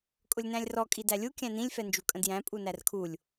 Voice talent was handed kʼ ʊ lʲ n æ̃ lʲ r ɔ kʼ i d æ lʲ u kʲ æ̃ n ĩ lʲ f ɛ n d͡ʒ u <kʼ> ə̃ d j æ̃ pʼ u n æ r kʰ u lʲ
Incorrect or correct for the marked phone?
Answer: correct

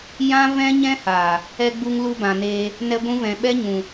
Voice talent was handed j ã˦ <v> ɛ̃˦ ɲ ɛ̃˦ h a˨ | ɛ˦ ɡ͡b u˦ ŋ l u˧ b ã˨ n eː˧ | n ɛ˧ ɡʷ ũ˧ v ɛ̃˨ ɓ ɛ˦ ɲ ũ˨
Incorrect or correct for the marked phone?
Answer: correct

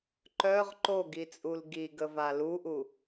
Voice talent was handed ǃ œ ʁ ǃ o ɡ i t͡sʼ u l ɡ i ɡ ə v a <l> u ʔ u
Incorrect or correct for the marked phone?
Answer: correct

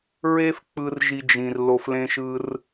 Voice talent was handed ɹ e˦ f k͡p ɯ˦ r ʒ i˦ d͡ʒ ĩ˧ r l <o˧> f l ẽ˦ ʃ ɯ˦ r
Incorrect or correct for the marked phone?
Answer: correct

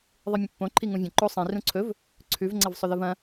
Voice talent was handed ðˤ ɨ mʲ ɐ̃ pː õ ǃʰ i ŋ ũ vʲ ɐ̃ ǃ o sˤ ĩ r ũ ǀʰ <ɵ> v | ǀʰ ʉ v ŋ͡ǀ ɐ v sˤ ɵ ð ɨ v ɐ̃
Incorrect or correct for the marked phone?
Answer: correct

